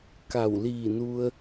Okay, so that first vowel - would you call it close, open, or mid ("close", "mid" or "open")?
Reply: open